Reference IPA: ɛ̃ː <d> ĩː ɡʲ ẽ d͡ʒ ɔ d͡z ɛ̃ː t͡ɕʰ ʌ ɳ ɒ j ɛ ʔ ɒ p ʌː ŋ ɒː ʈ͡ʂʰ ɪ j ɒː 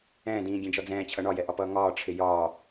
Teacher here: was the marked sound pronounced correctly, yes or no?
yes